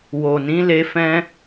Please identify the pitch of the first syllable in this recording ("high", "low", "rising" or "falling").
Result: low